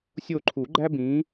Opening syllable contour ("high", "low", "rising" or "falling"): falling